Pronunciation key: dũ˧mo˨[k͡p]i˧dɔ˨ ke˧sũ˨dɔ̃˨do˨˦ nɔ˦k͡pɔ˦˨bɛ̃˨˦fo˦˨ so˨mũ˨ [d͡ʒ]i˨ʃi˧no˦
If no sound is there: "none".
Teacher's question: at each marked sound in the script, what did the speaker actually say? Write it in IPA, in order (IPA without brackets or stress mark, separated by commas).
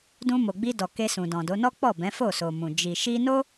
ɡ͡b, d͡ʒ